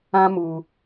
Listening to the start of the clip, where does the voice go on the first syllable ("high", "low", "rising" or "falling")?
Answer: high